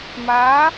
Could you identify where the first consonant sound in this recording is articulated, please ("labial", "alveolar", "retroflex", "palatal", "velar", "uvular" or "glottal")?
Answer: labial